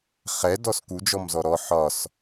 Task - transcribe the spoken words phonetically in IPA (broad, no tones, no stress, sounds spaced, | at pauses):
χ ɛ d ɔ s k u d͡ʒ ɔ m z ɔ ɾ ɔ ħ ɒ s